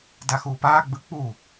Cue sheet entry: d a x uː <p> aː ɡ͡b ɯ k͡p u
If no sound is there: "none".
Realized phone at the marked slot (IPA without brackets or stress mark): p